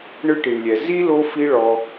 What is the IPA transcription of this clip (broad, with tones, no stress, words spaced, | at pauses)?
ɳɯ˦ʈi˨ɳlʲɛ˨ zi˦ lo˦fi˦ɭɔ˧